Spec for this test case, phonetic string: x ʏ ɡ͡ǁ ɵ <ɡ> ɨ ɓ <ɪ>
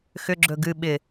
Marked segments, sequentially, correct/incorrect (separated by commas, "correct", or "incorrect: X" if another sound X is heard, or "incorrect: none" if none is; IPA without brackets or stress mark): correct, correct